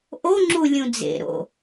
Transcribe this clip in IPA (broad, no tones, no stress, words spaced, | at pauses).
ʔoŋ͡ǁu lʲũd͡zḛɾo̰